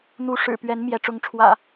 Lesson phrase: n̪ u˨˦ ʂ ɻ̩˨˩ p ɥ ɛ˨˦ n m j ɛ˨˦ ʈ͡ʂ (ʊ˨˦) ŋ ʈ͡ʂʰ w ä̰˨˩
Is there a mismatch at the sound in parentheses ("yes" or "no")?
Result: no